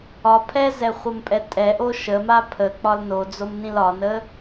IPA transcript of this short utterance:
ɒ pʰ ɛ z ɛ χʷ ə m pʼ ɛ tʼ ɛ ʔ o ʃ ə m a pʰ ə k͡p ɒ l n o d͡z o m n ĩ l ɒ n ə

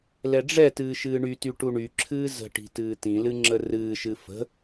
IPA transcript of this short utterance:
l ɛ ɖ͡ʐ ɛ t ɨː ʃ ɨː ɳ y t y ʈ u ɳ y ǁʰ ɨː z ə̤ ʈ i̤ t ɨː t ĩ l ɨ ŋ͡ǁ ə r ɨː ʃ ɨ f ə̤

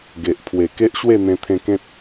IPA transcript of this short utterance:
ɡ e˨ ʔ pʰ w e˨˩ k e˦ ʔ ɕ w e˥˧ n̪ ẽ˧ t̪ʰ ẽ˧ k ẽ˦ t̚

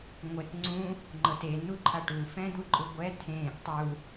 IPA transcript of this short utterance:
ŋʷ ɛ t ŋ͡ǀ ũ | ŋ͡ǃ ɤ t e n̪ u ǃʰ a ʈ u f ɛ̃ d̪ u ǃʼ ɯ ɡʷ ɛ t̪ʰ ẽː ʔ tˤ u

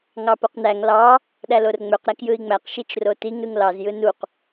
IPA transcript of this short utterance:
ŋ ɑ p o q n æ ŋ l ɑ | ɗ æ l o r ŋ͡m ø q ɾ æ k j ɯ i̯ ŋ͡m æ q ʃ i t͡ʃ r o t i ŋ ɾ ɯ ŋ l ɑ z j ɯ n u q

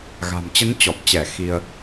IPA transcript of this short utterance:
ɣ a̤˨˩ m t͡ɕ ə˨˦ n t͡ɕ ɔ˨˩ p̚ t͡ɕ ɛ˧˩ x i˧ ə̯

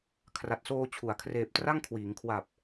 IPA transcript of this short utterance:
kʰ r a˨˩ t̚ s oː˧ t͡ɕʰ u˩˦ a̯ kʰ r eː˨˩ p̚ t r a˥˩ ŋ kʰ w iː˩˦ ŋ kʰ w a˨˩ p̚

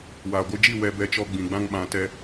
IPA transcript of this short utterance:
w aː˨ ɡʷ ɨ˧ d͡ʒ i˦˨ w ɛ˧ b ɛ˧ t͡ʃ ɔ˧ ɡ͡b ĩ˨ ɡ͡b ã˧ ŋ ɓ ã˨ t ɛ˧

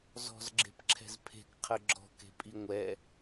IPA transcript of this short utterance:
z ɔ̤ z ɡ͡ǁ e̤ p ǁʰ ɛ̤ z pʰ e̤ k qʰ ə ɡ͡ǁ ɔ̤ k e̤ pʼ i ŋʷ ɛ

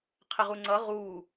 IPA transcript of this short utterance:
qʰ ɛ ʁ u ŋ͡ǀ ʌ ʁ u

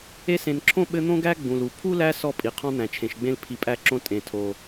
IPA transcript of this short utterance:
e˦ s ẽ˨ n ǁʰ õ˥ ɓ ɘ˦ n̪ õ˥ ɡ æ˥ ɡ͡b ũ˩ l u˩ pʰ u˥ l æ˦ s ɔ˥ pʼ i˩ qʰ ɔ̃˥ n̪ æ̃˩ t͡ʃʰ ẽ˩ ʃ ɡ͡b ẽ˥ l pʰ i˨ pʼ æ˦ ǁ õ˦ tʼ ẽ˩ tʰ o˩

